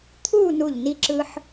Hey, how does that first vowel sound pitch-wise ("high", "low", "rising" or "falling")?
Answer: falling